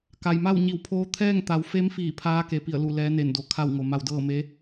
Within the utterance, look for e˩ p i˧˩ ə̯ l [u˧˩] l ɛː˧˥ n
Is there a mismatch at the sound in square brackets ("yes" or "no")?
no